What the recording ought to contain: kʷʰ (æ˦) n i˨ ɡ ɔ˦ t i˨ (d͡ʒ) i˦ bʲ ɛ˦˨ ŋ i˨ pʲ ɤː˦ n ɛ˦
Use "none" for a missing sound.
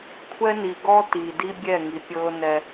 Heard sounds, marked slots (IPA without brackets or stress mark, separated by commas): ɛ˦, d